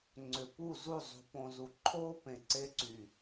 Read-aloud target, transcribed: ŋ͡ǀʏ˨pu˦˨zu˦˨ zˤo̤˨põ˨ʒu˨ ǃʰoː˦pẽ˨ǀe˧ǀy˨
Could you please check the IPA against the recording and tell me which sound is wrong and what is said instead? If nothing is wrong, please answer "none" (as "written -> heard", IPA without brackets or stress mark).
ʒ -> z